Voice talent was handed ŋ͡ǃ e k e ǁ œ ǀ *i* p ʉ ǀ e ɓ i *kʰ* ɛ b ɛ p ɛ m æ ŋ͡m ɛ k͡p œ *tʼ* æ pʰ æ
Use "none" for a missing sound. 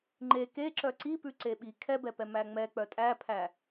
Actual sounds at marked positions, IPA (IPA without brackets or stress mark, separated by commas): i, kʰ, tʼ